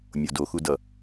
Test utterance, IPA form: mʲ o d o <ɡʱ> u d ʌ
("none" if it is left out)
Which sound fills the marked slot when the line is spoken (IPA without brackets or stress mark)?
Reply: x